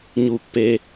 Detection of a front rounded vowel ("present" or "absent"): absent